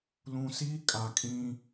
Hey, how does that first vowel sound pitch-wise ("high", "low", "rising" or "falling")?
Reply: low